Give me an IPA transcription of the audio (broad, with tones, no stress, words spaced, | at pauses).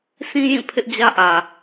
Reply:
sʰĩ˦jĩ˦˨ pʰɪ˦ʔd͡ʑä˦ʔä˨